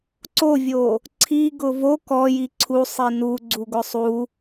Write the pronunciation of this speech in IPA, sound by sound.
ǀovʲo | ǀʰi ɡʊvo kɔji ǀʰu sˤinuɡ͡ǀu ɡʊsˤu

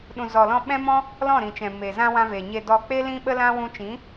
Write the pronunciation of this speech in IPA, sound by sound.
ɗũ˨zɔ˨lɔ̃˧ ɓɛ̃˦mɔ̃˦ | lɔ̃˦˨ɾĩ˨t͡ʃɛ̃˨ me˨zã˧ wã˧ve˨ ɲe˨ dɔ˨k͡pe˧ lĩ˦ɓə˦lã˦ wũ˧t͡ʃĩ˨˦

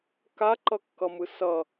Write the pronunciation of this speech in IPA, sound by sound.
kaǃʌkːʌmɯ sʌ

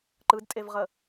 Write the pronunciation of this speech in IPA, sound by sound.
ǃɯdtʼevʁə

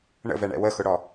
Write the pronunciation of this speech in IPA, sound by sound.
ɳə̰vɛɳɛ̰ wəxʊɽɔ

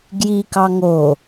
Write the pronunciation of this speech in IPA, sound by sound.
ɡjikɑ ŋo

